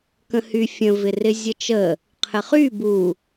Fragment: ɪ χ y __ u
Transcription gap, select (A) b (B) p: A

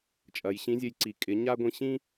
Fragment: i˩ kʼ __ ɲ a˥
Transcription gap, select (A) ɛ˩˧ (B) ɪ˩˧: B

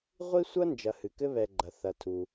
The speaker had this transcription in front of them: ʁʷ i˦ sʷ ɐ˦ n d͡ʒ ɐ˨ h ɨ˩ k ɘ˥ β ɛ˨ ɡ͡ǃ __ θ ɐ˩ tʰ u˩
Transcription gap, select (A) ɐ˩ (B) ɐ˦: A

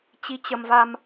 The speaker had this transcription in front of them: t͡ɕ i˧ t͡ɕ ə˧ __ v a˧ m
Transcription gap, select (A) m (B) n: A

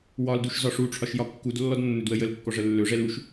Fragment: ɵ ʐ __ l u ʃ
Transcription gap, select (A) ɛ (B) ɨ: A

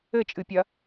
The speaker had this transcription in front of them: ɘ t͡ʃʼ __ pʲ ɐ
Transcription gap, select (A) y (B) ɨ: B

